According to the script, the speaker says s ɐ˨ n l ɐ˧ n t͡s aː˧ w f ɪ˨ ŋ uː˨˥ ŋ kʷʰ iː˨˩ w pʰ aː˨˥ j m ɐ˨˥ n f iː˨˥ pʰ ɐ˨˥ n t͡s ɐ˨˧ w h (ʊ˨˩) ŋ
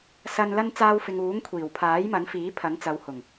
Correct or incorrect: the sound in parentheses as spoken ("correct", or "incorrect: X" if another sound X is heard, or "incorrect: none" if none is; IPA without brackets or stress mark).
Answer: correct